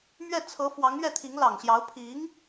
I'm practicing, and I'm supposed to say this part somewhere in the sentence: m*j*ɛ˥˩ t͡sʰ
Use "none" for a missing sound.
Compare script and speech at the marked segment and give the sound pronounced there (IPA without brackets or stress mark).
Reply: ɥ